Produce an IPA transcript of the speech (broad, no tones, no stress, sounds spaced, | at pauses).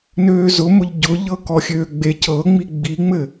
n øː z ʊ m ʊ ʎ ɟ ʊ ʎ ɤ k ɔ xʲ øː ɡ͡b e c ɤ ŋ͡m i ɡ͡b i ŋ͡m ɘ